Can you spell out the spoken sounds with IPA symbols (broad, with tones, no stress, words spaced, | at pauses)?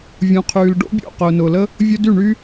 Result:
vʲũ˨qʰyː˨lɖo̰˦bʲo̰˦˨ qʊː˨nʊː˨lə˦ | vʲʊ˧ dy˦˨ɳy˦